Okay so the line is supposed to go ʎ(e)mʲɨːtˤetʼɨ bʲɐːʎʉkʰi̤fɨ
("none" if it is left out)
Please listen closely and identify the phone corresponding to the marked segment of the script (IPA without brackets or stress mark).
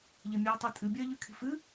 e